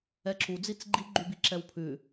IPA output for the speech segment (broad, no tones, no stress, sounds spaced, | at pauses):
ɛ ǁ u d͡z i t͡s ɡ͡ǃ i ɡ͡ǃ y b i ǁ ɛ w pʰ ʉ